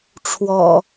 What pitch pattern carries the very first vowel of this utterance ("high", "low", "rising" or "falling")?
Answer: low